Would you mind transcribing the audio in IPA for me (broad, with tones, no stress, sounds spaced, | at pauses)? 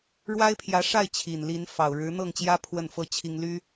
ɻ w a˥ ɪ̯ pʰ j ä˧˥ ʂ a˥˩ ɪ̯ t͡ɕʰ i˨˩ n l i˧˥ n f ɑ˨˩ ʊ̯ ɻ ɻ̩˧˥ n̪ ɤ˥˩ ŋ t͡ɕ j ä˥ pʰ w ə˥˩ n f ɤ˥ t͡ɕʰ i˥ ŋ l y˥